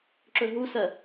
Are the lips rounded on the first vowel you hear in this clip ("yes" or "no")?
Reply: yes